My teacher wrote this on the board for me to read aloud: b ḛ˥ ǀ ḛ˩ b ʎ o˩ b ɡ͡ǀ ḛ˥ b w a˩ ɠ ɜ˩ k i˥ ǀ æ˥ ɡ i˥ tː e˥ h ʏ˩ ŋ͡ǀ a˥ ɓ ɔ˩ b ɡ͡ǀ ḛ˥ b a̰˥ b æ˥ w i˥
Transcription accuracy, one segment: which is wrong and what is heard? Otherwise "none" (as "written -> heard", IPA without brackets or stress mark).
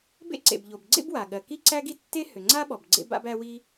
none